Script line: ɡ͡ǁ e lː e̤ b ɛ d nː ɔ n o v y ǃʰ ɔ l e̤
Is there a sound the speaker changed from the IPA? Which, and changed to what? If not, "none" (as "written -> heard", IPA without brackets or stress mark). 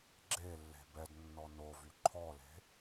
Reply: none